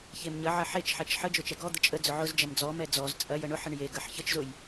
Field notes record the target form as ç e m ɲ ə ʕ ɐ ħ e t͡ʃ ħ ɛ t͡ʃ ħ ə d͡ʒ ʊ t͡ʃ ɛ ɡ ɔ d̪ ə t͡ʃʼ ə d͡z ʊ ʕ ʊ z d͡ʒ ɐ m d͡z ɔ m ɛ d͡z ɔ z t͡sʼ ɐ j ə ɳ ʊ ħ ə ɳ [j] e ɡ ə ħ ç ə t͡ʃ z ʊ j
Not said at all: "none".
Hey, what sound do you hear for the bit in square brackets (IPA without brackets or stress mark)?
j